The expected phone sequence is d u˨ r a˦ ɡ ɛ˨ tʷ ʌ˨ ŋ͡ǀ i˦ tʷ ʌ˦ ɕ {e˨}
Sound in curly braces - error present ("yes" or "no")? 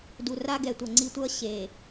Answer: no